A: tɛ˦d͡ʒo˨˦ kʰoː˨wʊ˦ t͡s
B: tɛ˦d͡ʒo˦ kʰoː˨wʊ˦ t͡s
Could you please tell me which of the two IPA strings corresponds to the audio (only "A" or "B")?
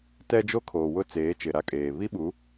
B